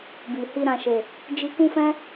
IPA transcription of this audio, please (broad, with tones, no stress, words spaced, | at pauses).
bi˨hi˧ ɾã˨ʃe˨ | d͡ʒi˧kũ˦fɛ̃˦